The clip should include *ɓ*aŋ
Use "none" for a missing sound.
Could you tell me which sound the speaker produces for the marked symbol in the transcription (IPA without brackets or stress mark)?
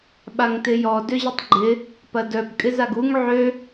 ɓ